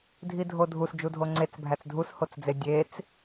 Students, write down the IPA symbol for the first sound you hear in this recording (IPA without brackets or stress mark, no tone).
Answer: dʱ